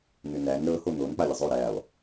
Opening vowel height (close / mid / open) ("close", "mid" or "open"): close